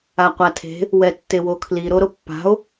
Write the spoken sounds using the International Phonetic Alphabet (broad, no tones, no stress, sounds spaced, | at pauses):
a qʷ a tʰ e̤ | w ɛ tː e w o kʰ l i ɾ o ɾ o pː a̤ o̯